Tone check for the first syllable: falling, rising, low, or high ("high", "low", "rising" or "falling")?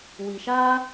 low